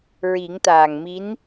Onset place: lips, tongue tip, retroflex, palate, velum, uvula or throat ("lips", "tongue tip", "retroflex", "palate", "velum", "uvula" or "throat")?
tongue tip